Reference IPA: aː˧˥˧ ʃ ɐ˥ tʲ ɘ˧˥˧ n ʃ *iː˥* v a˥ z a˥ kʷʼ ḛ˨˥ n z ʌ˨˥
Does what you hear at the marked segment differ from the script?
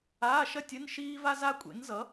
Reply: no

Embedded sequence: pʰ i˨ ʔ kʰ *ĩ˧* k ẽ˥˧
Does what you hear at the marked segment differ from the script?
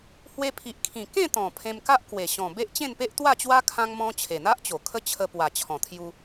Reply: yes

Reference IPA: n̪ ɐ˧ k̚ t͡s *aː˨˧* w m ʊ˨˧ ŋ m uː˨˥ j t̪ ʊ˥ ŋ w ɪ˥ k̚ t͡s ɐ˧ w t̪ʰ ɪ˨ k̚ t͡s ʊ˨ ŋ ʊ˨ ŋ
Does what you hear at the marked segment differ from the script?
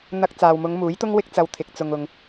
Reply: yes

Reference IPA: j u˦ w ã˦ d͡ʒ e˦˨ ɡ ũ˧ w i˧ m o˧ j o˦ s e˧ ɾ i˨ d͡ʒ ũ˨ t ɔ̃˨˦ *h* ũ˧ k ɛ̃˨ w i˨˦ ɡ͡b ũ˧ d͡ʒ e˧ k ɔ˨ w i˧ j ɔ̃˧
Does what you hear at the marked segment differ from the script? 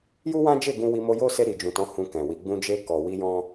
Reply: no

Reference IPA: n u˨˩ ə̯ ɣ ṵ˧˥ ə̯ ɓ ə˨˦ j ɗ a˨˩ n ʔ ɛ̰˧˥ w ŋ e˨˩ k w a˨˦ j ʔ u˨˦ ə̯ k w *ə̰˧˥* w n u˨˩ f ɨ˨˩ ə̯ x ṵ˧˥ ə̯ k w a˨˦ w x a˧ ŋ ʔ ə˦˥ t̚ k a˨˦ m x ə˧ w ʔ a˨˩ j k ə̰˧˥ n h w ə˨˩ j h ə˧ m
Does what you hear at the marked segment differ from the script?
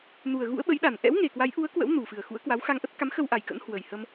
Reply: no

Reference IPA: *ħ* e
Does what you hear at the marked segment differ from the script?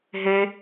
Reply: yes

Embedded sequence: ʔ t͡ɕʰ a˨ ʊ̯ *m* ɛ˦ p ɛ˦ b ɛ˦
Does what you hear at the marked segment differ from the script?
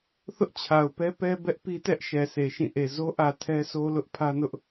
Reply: yes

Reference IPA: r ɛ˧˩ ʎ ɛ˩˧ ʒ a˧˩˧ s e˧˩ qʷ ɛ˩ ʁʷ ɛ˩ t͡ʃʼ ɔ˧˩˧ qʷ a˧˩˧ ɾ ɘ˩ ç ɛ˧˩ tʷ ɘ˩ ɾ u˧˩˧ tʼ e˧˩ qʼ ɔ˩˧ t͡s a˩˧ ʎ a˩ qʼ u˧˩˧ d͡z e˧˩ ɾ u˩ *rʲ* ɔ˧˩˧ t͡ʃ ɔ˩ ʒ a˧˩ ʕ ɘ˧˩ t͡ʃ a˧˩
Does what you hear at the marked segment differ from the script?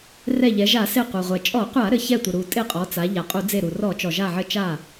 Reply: yes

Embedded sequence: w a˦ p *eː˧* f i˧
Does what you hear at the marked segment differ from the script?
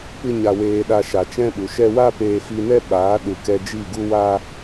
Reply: no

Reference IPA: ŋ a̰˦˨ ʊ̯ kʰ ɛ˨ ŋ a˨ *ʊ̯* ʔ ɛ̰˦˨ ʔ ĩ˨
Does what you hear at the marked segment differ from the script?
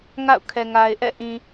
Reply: yes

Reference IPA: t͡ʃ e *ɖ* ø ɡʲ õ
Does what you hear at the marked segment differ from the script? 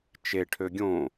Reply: yes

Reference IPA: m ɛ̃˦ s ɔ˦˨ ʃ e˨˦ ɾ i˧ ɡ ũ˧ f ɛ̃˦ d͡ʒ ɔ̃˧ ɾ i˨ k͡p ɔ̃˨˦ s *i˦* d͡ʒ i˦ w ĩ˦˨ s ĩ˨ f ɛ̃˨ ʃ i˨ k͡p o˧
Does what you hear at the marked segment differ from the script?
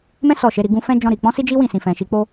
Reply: no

